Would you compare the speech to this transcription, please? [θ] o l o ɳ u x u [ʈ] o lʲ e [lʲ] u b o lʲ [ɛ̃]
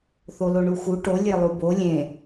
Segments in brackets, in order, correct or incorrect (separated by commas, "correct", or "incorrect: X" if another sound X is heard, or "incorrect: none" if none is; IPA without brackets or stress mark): correct, correct, incorrect: lˠ, incorrect: ẽ